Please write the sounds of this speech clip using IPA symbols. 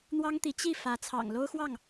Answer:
n̪ w ɑ˥ ŋ t̪ i˧˥ t͡ɕ i˥˩ f ä˧˥ t͡sʰ ɑ̰˨˩ ŋ l o˥ ʊ̯ x w ɑ˥˩ ŋ

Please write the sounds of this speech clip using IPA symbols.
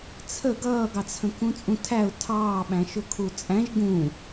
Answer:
t͡sʰ ə ɡ ʌː ɡ ɑ t͡sʰ ə̃ k ũ t͡sʼ ũ tʰ æ ʊ̯ tʰ ɑː ɓ æ̃ ʃ ʊ kʰ u t͡sʼ æ̃ ʒ ɡ ũ

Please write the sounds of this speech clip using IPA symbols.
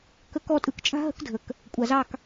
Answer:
k ə˦˨ k ɔ˦˨ tʼ ɯ˩ k t͡ʃʼ a̤˥ ɦ ə̤˥ k dʱ ə˩ k | kʷʼ a˩ z ɑ˦˨ k

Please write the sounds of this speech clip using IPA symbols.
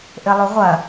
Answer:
ʔ ɘ lˠ u ʁʷ ɐ

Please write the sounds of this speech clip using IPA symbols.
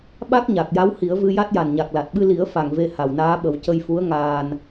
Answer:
ɓ a˦˥ k̚ ɲ a˨˩ k̚ j a˧˥ w h i˨˩˦ ə̯ v ɨ˧ j a˦˥ t̚ j a˨˩ n ɲ a˨˩ k̚ l a˨˩ t̚ ɓ ɨ˧ l i˨˩˦ ə̯ f a˨˩ ŋ v e˧ h a˨˩ w n aː˧˥ ɓ ə˨˩˦ w c ə˧ j f u˧˥ ə̯ ŋ aː˧ n

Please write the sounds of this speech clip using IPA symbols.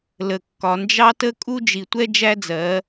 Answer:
l ə˨ kː ɒ˨ n d͡ʒ ɑ˦ t ə˦ kʼ u˦ d͡ʒ i˨ tʷ ɛ˦ d͡ʒ æ˦ d͡z ɜ˨˦

